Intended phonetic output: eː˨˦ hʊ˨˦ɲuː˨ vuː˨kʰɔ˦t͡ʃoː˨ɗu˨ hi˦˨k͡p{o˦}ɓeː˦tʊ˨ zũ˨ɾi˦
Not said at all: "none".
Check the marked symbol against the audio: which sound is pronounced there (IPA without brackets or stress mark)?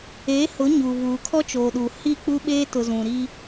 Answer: u˦